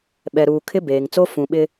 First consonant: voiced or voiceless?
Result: voiced